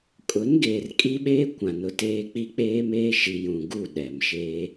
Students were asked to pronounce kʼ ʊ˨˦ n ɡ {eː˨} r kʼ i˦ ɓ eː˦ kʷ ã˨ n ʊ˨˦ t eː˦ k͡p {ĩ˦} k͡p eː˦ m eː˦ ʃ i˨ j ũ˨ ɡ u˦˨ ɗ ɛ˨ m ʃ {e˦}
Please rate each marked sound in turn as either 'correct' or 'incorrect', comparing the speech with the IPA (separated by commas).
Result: correct, incorrect, incorrect